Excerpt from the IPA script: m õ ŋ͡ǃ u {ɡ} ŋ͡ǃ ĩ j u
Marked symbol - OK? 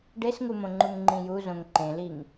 no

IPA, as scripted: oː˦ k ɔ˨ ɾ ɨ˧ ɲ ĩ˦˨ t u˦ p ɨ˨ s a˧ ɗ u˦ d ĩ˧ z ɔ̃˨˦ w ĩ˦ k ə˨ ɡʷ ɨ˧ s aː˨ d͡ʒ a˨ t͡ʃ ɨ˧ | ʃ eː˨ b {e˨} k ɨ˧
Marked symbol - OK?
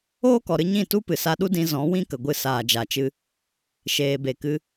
yes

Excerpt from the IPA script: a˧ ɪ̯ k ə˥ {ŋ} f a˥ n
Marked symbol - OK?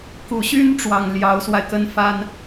no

